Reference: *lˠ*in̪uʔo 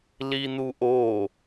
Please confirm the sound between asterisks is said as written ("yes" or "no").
no